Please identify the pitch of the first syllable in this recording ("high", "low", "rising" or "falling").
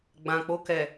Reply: low